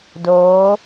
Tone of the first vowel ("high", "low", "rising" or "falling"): rising